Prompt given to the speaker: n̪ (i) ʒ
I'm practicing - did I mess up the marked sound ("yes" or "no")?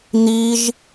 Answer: no